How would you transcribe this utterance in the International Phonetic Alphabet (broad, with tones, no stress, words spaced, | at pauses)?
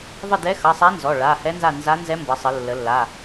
ðˤə˦˨dɛ˧˥xʌ˩˧˩sˤa˧˥ nzɔ˩˧˩ɭa˩˧˩ hɛ˧˥nza˦˨ nza˧˥nzɛ˧˥mbʌ˩˧sˤə˩˧ lːə˩˧lːa˩˧˩